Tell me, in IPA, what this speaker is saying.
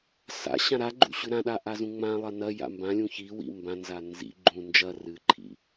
sa̰ɕã ɾa ɡ͡ǃṵɕʉɾãɗa ʔazũŋ͡mãlˠɐ nɐ ja̰mbãlʲũ çiwḭ mbãnza nzḭ ɡ͡ǃũ nd͡ʒɐ rɨǃʰḭ

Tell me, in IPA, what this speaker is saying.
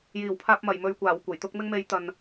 jiː˨˩wpʰaː˧p̚mɐ˨˩j mɵ˨ɥkʷaː˨˩w kʷɐ˨˩jt̪ʊ˥k̚ mɪ˧ŋme˨˥j t̪ɐ˨n

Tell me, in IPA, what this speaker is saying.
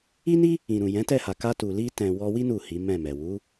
i˦ni˦ | ĩ˨ ɾũ˨ jɛ̃˨˦tɛ˦˨ha˨ ka˧tu˨ li˧tɛ̃˨ wɔ˧wi˦ nu˦˨hi˨˦mɛ̃˦˨mɛ˨ wu˨˦

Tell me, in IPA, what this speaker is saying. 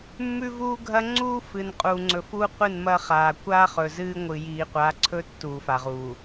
mːʉ˦vuː˦ɡʱɐ˦ ŋ͡ǀuː˦fɨ˨n qʼuː˨ŋ͡ǀɵ˨ fuː˦qʷɨ˦˨nmɐ˦χaː˨ kʷaː˦ χɵ˨zɨː˦ ŋʷɨ˨ jiː˨qʷa˨˦ǀʰɵ˦ tːuː˨fa˨ʁuː˨

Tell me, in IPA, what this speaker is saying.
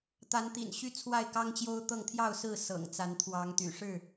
t̪a˨˦nt̪ḭ˨˩nɕy˦ t͡sʰwa˥˨ɪ̯kɑ˦ŋt͡ɕjo˦ʊ̯t̪ɤ˥˨ŋ t̪ʰjɑ˥˨ʊ̯sɹ̩˥˨ sɤ̰˨˩ŋt͡sa˨˦nt̪ʰwɑ˨˦ŋ t̪y̰˨˩ʂɻ̩˥˨

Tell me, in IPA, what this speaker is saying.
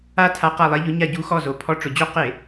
a˦˨ tʰa˧˥qa˦˨lˠɛ˧˥ʎʊ˧˥ ɲa˦˨ɟu˧˥xɔ˦˨zo˨˩ pʰɔ˧˥ʈ͡ʂʊ˨˩d͡ʑo˥ qɪ˧˩˧

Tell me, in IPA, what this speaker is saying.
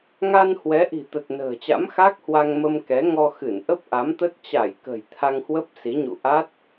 ŋa˧nhwɛ˨˦ ʔi̤˨˩t̪ə˨˩t̚nə̤ː˨˩t͡ɕa̰˧˥m xa˦˥k̚hwa˧ŋ mə˧mkɛ˨˦ŋɔ˧ xɨ˧˩nʔə˦˥p̚ʔa˨˦mt̪ə˦˥t̚ t͡ɕa˧˩jkə̤˨˩j t̪ʰa˧ŋhwə˦˥p̚si˨˦ɲṵ˧˨ ʔa˦˥t̚

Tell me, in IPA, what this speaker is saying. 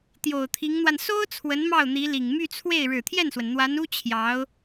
t̪jo˨˩ʊ̯t̪ʰi˧˥ŋn̪wa˧n so˥ʊ̯ t͡sʰwə˧˥nmɑ˥˩ʊ̯n̪i˧˥li˨˩ŋ my˥˧t͡sʰwe˥˩ɪ̯ ɻɻ̩˨˩t̪ʰjɛ˥˩nswə˩n n̪wa˧˥nu˥ t͡ɕʰjɑ˧˥ʊ̯

